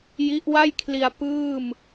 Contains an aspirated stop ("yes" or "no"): yes